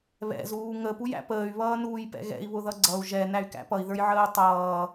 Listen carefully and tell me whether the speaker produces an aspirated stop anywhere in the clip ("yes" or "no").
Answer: no